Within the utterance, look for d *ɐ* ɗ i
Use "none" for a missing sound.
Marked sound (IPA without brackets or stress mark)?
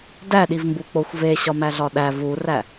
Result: æ